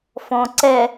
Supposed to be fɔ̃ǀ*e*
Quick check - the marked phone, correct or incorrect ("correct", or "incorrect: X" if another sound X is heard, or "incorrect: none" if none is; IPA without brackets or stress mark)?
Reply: incorrect: ɛ